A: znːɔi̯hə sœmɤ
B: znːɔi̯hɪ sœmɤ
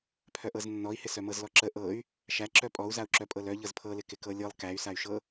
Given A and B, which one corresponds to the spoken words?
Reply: B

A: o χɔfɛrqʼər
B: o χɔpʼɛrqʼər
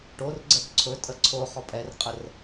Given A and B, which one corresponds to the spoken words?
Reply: B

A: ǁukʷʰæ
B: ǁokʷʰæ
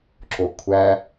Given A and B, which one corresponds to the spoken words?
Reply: B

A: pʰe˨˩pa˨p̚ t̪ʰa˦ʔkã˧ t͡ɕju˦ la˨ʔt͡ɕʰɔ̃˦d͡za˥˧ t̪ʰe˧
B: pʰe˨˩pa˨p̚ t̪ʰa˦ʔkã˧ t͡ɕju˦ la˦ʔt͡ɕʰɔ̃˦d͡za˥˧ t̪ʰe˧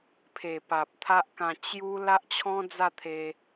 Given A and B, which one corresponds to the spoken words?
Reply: B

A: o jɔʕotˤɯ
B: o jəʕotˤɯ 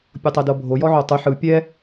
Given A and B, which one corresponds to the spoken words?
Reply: A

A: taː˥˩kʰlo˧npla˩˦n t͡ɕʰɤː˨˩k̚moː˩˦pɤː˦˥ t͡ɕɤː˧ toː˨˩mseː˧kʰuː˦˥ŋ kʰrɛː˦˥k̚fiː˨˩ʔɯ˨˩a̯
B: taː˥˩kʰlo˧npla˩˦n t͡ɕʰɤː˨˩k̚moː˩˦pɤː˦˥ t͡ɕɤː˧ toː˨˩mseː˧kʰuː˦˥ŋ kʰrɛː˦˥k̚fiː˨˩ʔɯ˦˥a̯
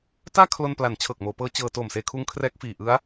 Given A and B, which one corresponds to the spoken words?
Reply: B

